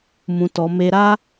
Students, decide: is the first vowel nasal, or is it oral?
nasal